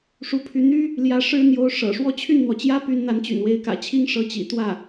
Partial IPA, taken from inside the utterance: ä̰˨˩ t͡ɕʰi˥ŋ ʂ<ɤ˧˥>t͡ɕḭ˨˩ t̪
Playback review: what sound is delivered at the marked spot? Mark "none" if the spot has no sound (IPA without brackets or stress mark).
ɤ˧˥